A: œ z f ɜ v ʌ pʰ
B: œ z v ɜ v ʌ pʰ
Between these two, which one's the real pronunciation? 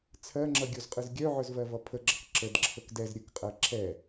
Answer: B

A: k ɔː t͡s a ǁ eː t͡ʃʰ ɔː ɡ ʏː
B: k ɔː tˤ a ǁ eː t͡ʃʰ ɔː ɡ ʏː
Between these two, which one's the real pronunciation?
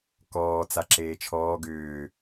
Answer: A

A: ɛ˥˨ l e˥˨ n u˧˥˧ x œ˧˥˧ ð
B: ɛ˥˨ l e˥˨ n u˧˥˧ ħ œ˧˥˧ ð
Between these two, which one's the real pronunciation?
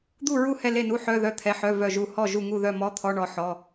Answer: B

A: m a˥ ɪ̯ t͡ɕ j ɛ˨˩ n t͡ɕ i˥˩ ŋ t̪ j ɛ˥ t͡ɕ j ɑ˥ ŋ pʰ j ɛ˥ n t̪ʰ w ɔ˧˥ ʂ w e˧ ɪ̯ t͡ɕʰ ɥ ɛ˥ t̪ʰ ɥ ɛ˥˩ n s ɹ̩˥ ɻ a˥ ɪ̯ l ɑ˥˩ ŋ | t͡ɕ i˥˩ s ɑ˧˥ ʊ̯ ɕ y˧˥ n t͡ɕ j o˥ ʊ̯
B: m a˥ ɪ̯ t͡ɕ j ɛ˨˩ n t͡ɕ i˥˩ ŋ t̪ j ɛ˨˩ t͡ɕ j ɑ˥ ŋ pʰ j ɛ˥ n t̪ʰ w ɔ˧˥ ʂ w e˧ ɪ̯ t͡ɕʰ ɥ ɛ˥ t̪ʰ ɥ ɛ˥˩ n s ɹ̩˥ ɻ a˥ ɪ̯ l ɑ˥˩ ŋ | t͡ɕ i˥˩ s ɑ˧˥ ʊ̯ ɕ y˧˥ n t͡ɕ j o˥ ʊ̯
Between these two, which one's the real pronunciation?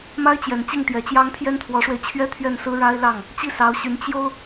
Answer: B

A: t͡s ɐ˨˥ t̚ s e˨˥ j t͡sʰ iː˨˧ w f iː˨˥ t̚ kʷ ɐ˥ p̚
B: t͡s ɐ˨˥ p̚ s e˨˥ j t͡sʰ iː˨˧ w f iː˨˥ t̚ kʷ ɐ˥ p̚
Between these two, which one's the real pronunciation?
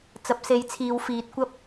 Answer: B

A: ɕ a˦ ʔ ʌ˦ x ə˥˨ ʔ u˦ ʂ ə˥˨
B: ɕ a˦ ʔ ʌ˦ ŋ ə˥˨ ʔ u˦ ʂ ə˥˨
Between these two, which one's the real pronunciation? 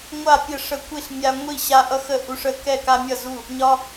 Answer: A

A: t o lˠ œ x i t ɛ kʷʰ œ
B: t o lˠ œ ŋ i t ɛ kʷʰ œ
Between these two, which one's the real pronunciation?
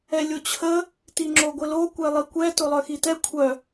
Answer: A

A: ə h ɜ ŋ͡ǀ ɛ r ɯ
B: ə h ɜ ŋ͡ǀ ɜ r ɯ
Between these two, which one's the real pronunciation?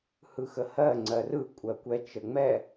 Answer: B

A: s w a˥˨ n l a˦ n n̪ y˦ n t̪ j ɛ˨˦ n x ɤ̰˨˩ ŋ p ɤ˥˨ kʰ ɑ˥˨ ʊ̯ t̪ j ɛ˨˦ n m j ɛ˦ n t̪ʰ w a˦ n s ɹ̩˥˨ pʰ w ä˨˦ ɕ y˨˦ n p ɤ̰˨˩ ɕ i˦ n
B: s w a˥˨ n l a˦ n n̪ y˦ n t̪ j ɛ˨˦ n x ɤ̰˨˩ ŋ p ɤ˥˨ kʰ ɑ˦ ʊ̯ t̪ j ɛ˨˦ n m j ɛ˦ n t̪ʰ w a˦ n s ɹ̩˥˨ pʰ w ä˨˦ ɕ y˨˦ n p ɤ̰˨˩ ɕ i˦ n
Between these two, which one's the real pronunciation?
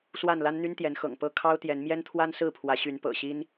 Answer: B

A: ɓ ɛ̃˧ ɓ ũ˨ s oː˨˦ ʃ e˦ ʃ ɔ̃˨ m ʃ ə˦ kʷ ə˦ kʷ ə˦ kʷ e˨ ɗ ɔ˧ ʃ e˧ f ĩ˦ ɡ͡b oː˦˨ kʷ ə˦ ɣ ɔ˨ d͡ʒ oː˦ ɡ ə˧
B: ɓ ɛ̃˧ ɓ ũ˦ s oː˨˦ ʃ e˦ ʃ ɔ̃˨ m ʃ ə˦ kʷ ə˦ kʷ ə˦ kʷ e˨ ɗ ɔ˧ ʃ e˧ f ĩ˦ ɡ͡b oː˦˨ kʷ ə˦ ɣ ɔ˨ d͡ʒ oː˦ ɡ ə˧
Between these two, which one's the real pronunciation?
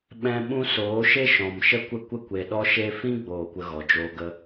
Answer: B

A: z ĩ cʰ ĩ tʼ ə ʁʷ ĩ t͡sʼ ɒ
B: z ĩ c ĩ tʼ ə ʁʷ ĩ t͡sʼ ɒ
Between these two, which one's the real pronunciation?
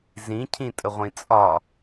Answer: A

